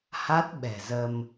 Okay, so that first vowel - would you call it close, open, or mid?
open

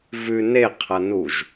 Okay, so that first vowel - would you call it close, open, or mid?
close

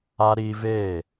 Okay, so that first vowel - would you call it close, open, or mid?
open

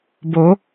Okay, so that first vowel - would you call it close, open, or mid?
mid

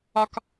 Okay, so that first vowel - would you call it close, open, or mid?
open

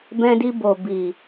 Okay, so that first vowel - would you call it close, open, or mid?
mid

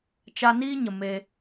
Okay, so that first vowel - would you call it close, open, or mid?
open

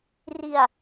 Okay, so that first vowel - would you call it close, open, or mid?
close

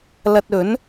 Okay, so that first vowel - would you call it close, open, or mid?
open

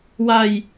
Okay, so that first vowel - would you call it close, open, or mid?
open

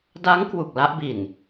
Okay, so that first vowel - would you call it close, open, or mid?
open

